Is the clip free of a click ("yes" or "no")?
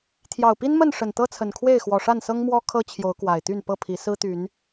yes